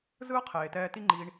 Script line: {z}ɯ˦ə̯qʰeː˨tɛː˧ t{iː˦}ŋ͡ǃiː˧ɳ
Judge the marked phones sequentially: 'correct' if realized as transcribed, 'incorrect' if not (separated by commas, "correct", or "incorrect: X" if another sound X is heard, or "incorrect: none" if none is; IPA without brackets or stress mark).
correct, incorrect: i˦